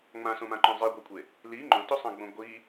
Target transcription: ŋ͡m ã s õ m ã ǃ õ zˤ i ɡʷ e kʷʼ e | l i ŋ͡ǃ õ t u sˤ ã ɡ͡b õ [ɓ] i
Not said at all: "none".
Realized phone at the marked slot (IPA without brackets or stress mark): ɡʷ